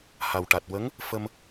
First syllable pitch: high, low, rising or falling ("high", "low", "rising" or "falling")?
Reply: low